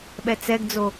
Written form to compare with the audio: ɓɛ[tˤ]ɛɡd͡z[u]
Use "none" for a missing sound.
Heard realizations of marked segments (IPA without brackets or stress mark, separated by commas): t͡s, o